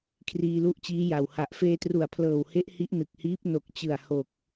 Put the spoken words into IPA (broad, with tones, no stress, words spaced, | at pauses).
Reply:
kʰriː˧lu˥˩ʔt͡ɕiː˦˥ja˨˩w ha˨˩ʔ feː˧tru˨˩a̯pʰlɤː˨˩whe˦˥ʔ hi˦˥ʔnɯ˨˩k̚hiː˦˥p̚ no˨˩k̚t͡ɕɯ˨˩a̯ ho˨˩k̚